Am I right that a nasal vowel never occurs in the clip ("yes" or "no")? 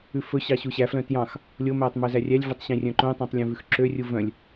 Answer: no